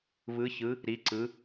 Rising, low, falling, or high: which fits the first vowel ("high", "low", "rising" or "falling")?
rising